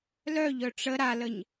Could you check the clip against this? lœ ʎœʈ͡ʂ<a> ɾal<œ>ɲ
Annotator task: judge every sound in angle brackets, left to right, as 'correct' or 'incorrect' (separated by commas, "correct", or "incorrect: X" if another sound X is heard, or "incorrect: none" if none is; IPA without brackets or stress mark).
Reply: incorrect: ə, incorrect: ə